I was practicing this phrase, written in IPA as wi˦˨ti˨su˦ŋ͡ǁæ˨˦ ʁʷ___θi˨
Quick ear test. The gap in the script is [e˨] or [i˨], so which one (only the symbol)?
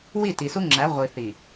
i˨